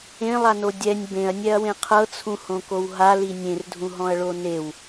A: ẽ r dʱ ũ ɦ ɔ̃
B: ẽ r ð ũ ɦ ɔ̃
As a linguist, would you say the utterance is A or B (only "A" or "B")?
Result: A